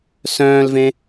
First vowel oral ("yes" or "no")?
no